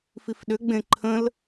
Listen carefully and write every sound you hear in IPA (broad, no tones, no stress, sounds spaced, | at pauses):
f i f ɗ ʏ ɡ͡b ẽ ǃʰ ə̃ l